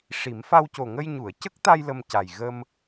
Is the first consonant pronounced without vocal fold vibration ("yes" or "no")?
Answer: yes